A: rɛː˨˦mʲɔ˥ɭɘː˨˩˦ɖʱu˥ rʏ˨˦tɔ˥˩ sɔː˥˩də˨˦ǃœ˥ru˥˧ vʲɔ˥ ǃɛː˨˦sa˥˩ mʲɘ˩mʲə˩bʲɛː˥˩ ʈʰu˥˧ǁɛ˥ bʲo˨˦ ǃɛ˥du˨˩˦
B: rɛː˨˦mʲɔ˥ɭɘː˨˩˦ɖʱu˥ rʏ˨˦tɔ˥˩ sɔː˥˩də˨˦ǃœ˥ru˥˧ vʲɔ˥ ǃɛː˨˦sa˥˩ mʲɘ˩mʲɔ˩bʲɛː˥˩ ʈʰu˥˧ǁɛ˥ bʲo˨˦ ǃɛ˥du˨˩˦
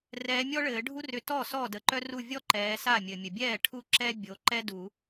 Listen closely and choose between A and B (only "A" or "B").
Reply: A